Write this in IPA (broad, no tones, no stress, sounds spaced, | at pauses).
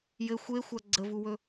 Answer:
j ɘ xʷ e xʷ a ɡ͡ǀ ə v u w ɵ